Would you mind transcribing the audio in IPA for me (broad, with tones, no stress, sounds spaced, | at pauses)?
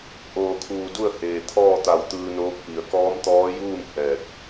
ʔ oː˧˩ kʰ uː˧˩ d u˥˨ ə̯ h eː˩ t̪ʰ ɔː˥˨ t̪ a˧˩ w t̪ ɯː˧ n oː˧˥ k̚ p i˩ ə̯ k ɔː˧˥ m t̪ ɔː˧˥ j uː˥˨ m h ɛː˧˩ k̚